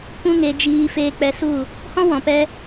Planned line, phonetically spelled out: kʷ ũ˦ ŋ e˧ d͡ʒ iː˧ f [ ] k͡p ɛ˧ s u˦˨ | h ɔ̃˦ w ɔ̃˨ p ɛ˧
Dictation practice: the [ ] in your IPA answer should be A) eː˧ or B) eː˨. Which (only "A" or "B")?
A